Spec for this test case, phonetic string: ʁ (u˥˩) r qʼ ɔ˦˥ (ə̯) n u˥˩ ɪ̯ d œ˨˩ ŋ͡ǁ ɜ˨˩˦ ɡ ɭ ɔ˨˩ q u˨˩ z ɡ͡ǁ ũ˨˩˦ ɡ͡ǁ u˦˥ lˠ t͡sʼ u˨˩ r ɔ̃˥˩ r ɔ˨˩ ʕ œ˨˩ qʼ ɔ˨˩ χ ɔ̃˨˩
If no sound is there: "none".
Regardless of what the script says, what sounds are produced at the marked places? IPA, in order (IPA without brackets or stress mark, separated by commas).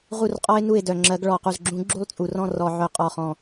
u˥˩, ɪ̯